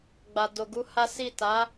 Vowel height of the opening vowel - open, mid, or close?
open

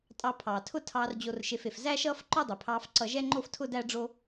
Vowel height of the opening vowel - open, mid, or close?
open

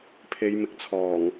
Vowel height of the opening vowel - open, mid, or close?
mid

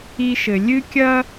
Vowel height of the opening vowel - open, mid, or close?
close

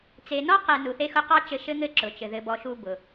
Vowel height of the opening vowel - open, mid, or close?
mid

